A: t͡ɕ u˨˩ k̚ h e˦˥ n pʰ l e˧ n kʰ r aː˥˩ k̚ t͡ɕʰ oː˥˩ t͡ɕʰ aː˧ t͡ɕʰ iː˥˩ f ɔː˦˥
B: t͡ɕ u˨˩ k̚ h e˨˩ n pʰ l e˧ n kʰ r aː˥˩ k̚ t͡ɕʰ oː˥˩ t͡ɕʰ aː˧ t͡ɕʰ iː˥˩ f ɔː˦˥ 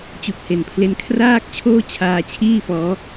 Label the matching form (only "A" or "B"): B